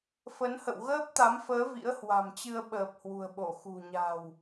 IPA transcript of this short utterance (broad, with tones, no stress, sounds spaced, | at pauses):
f ə˨˦ n h ə̰˧˨ w ɣ əː˦˥ p̚ t̪ a˨˦ m f əː˨˦ v ḭ˧˥ ə̯ h w a̤˨˩ m t͡ɕ ɨ˧ ə̯ ɓ əː˨˩ p̚ h w ṳ˨˩ ə̯ ɓ o˧˩ x ṳ˨˩ ɲ a̤˨˩ w